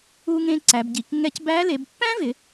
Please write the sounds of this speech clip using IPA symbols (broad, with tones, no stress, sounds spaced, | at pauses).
u˧ ŋ ẽ˧ ǀ æ˩˧ b ɟ i˩˧ k ŋ ɛ˧ c b æ˧˥ l e˩˧ b pː æ̃˥ v ɪ˩˧